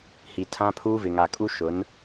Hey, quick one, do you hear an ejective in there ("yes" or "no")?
yes